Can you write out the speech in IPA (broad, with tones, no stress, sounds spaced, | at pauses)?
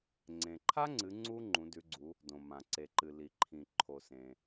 ŋ͡ǀ ẽ˩ ǃʰ a˦˥ ŋ͡ǀ ɨ˩˧ ŋ͡ǀ u˦˥ ŋ͡ǃ ũ˩˧ d ʉ˩˧ ɡ͡ǀ u˩˧ | d õ˩ m ã˩ ǀ e˩ ǃ ɨ˩ l i˩ ǃʰ ĩ˩ ǃʰ o˩ s ẽ˩